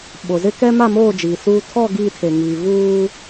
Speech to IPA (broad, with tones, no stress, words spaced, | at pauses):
ɓo˨zɪ˦ kɛ˦ ma˦˨moː˦˨ d͡ʒiː˨suː˦ tʰɔ˦˨ ɡiː˦˨tʰe˨ŋiː˨ vuː˦